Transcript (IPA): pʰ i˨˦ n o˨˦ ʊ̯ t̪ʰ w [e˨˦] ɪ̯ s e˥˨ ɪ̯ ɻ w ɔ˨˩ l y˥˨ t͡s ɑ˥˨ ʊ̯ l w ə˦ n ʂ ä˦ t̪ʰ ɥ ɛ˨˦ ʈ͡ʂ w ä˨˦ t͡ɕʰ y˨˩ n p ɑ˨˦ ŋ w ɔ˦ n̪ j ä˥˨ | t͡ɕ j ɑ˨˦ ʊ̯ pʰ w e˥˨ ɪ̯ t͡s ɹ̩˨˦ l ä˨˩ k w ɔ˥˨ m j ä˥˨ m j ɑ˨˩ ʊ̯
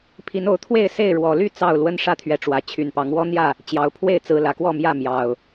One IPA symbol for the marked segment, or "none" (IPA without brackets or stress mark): e˥˨